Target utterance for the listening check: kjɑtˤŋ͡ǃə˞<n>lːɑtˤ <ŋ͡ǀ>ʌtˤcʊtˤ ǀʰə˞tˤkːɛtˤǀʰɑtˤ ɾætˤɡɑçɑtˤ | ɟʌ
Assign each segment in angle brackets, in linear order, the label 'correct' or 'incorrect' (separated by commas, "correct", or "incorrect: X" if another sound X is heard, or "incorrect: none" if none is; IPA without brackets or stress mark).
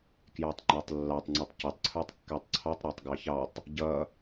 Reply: incorrect: tˤ, correct